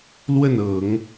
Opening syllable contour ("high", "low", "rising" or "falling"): falling